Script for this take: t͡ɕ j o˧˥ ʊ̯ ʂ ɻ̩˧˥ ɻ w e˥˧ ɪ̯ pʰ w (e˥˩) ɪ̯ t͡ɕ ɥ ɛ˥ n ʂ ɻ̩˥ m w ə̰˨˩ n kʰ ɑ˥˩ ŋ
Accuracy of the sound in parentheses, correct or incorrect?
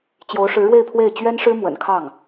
correct